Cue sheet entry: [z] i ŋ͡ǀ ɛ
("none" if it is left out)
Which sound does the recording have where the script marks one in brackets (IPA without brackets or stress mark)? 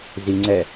z